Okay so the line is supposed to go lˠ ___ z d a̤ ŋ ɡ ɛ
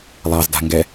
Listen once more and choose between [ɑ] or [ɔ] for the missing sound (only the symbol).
ɑ